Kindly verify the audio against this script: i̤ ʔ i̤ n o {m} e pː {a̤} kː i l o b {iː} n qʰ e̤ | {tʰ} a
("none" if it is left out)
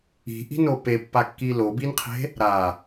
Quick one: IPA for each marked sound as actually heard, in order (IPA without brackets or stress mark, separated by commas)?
p, a, i, ɾ